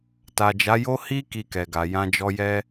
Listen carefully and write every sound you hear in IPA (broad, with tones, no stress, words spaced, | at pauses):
ta˨d͡ʒa˨˦jo˦ hi˦ ki˧kɛ˨ɡa˨ jã˧d͡ʒɔ˧jɛ˦